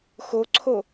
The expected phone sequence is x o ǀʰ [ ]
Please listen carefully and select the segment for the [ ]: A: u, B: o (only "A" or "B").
B